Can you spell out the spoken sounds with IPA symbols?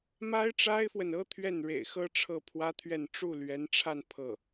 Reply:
m a˥ ɪ̯ ʈ͡ʂ a˥ ɪ̯ f w ə˨ n ɤ˥ t̪ʰ ɥ ɛ˥˩ n ɻ ḛ˨˩ ɪ̯ x ɤ˥ ʈ͡ʂʰ ɤ˥˩ pʰ w ä˥ t̪ʰ ɥ ɛ˥˧ n ʈ͡ʂ u˥˩ l ɥ ɛ˧˥ n ʈ͡ʂʰ a˥˧ n pʰ ɤ˥˩

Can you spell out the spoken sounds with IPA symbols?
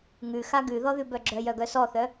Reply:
ŋ ʉ x a ɡ ʉ ð ɔ ð ʉ b œ ɡ͡ǁ œ j œ ɡ œ s ɔ θ œ

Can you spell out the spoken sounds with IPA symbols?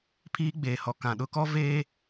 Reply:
pʰ iː˦ ɡ͡b eː˨ h ɔ˨ k ã˨ ɗ ʊ˦ k ɔ˦ v eː˦

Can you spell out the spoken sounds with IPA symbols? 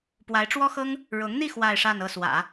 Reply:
p w a˧˥ ɪ̯ ʈ͡ʂ w ɔ˥ x ɤ˥ ŋ | ɻ ʊ˧˥ ŋ n̪ i˥˧ x w a˥˧ ɪ̯ ʂ a˥˧ n ɤ˥˩ s w ä̰˨˩˦

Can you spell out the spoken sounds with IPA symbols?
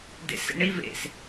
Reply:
d ḛ s ḛ ɳ i v ḛ s

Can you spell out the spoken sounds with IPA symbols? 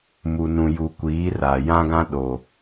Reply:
m u˨ n ũ˨ j u˨ kʷ iː˨˦ r a˨ j ã˦ ɡ ã˦ ɗ o˨

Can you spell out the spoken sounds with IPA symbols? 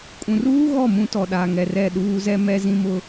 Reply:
kʼ ũ˨ r uː˦ ɣ ɔ˦˨ m ũ˦ t ɔ˨ ɗ a˨ ŋ ɛ˨ r ɛ˦˨ ɗ uː˦ z ɛ˦ m ɛ˦ z ĩ˦ m ʊ˦

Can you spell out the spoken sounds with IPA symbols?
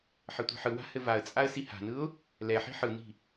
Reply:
ħ ɘ tʷ i̤ ħ ɯ w a̤ h ɘ v a ə̯ t͡sʼ a ə̯ s i h a̤ n ɯ ʊ̯ | l ɛ ħ i̤ ħ ɯ n i̤

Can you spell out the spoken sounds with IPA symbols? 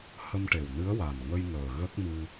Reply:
h ə˧ m ʈ e˨˩ w n ɨ˧˥ ə̯ w a˨˩ n ŋ ə˧ j ŋ əː˨˩ ɣ ə˦˥ k̚ m ɨ˧

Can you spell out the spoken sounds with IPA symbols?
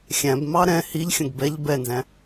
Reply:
xʲ æ̃ b m ɑ ɾ ɛ̃ h i ʎ xʲ ə̃ ɡ b ɛ ʎ b ɛ n z æ̃

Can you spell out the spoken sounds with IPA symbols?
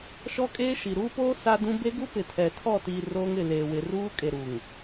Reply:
ʃ ɔ˦ kʼ eː˦ ʃ i˨ ɾ uː˦ p oː˦ s a˦ d ũ˦ b e˦ ɡ u˦ p ɪ˨ tʰ ɛ˨ tʰ ɔ˦˨ t iː˨ r oː˦ ŋ ɪ˦˨ l eː˨ w ɪ˨ r uː˦ kʼ e˨ ɾ u˨ ŋ

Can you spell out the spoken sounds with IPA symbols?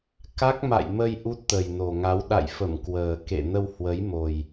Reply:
k a˦˥ k̚ m a̰˧˨ j m ə˧ j ʔ u˦˥ t̚ t̪ ə˨˩ j n o˨˩ ŋ a˨˦ w ɗ a̰˧˨ j f ə˧˩ m k w əː˨˩ k ḛ˧˨ n ə˧ w h w ə˨˦ j m o˨˩ j

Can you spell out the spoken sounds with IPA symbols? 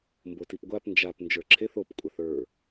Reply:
m b o t i p ɡʷ a p n d͡ʒ a p n d͡ʒ ə˞ ǁʰ e θ o p kʷʼ a θ ə˞

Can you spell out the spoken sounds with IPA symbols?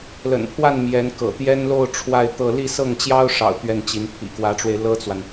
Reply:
l ə̰˨˩ n pʰ w a˥˩ n m j ɛ˧˥ n k ɤ̰˨˩ t̪ j ɛ˥ n l o˥˧ ʊ̯ ʈ͡ʂʰ w a˥˧ ɪ̯ t̪ ɤ˥˧ l i˥˧ s ɤ˥˩ ŋ t͡ɕ j ɑ˥ ʊ̯ ʂ ɑ̰˨˩ ʊ̯ t̪ ɥ ɛ˥˩ n t͡ɕ i˧˥ n pʰ ḭ˨˩ k w ä˧˥ ʈ͡ʂ w e˧ ɪ̯ l ɤ˥ t͡s w a˨ n

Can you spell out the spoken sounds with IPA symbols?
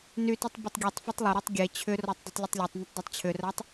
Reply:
n y t y tˤ b ʊ tˤ ɡʲ e tˤ f ɐ tˤ lˠ ʏ ɾ o tˤ ɡʲ e t͡ɕʰ ʏ r ɔ tˤ dˤ i tˤ lʲ ʊ tˤ lʲ e tˤ n ʏ tˤ dˤ ɐ tˤ t͡ɕʰ ʏ r a tˤ

